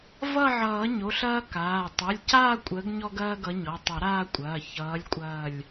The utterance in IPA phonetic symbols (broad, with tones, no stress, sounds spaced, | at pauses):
v ʌ˦˨ ʕ ʌː˨˩˦ ɲ o˩˧˩ ɬ ɐː˦ k aː˩˧˩ tˤ ʌ˩˧˩ lʲ c aː˦˨ kʷʼ əː˨˦ ɡ ɲ ɔ˦ ɡ ɐː˦ ɡ ʌ˨˦ ɲ ɔ˩˧˩ tˤ ʌ˨˩˦ ɾ aː˦˨ kʷʼ ɐː˩˧˩ ç ʌː˨˦ lʲ kʷʼ ɐː˦˨ lʲ